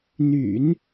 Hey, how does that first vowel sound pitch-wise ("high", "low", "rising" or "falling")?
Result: low